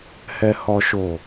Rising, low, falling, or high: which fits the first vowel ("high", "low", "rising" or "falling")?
low